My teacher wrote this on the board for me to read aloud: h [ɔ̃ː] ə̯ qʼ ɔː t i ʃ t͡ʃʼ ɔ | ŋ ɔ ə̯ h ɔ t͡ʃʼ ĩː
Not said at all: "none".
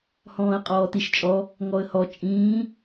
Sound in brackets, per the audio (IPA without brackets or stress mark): ɔ̃ː